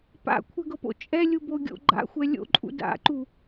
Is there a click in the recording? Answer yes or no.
yes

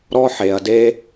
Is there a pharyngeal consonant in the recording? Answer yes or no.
yes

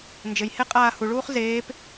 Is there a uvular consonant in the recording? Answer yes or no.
yes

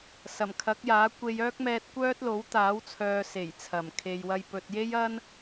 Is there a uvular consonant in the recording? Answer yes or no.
no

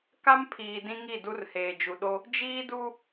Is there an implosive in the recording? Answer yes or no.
yes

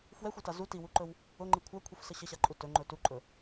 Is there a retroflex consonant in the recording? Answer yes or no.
no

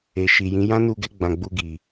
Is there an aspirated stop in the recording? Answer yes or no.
no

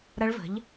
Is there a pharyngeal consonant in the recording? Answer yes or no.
no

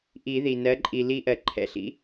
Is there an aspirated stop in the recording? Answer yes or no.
yes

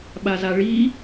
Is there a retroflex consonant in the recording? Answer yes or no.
yes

